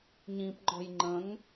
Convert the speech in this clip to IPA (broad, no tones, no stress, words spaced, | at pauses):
ɲĩpŋ͡ǃɔ̤j ŋ͡ǃə̃ŋ